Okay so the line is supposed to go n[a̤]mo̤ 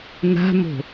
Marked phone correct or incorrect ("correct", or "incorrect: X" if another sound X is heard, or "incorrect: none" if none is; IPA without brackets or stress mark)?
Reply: correct